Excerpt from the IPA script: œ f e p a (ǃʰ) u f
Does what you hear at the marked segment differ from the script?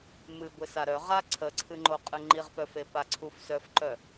yes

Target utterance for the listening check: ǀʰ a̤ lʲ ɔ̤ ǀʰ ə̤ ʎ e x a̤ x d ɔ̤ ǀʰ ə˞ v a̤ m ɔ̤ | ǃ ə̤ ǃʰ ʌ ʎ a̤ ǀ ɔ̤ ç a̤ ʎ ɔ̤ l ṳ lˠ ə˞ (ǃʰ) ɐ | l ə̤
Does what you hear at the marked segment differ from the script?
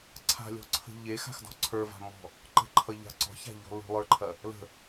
no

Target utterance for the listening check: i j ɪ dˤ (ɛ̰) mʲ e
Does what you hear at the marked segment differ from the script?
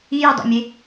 no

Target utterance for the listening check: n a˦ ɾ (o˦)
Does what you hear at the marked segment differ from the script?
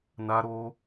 no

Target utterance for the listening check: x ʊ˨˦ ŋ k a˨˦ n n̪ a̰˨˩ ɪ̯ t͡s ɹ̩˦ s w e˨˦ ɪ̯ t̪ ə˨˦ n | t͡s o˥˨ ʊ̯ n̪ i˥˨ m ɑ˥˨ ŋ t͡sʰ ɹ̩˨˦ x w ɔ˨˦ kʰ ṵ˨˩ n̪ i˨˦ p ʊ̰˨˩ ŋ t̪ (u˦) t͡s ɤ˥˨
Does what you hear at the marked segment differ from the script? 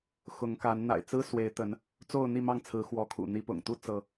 no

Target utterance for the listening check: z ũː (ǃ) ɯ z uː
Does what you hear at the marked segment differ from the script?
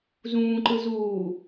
no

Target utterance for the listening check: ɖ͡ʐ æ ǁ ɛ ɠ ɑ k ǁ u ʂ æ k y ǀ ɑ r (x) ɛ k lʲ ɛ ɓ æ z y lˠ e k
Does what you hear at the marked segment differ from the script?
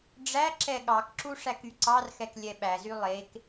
no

